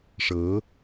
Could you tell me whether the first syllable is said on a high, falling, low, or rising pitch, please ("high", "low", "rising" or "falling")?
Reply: rising